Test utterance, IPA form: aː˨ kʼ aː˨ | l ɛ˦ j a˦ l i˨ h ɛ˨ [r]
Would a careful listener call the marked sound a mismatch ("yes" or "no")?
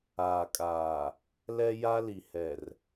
no